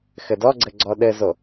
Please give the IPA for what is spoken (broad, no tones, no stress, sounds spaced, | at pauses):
x ɘ d ɔ ɡ͡ǀ ɘ ɡ͡ǀ ɔ ɗ ɘ z o